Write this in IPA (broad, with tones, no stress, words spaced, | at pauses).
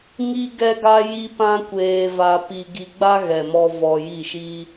ŋi˦ ɡɛ˦ɡa˦ji˦pã˦ kʷeː˧va˧ pi˧ ɡi˧ɡ͡ba˦ɣɛ˨mɔ˧ vɔ˧ji˦˨ʃi˦